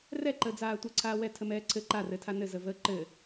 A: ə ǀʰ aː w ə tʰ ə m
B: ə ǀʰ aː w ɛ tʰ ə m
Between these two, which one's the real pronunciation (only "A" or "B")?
B